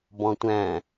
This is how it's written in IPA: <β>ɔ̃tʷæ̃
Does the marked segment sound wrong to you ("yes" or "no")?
yes